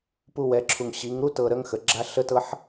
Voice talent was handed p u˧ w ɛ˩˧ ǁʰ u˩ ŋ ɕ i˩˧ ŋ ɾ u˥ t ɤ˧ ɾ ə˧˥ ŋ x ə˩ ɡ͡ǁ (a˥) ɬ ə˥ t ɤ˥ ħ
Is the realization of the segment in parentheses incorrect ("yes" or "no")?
no